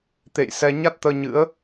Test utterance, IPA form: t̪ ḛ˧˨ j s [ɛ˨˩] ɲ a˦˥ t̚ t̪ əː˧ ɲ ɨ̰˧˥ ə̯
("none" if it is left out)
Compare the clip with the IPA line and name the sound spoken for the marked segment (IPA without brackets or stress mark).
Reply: ɛ˧